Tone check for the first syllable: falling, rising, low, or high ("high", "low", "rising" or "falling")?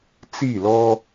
falling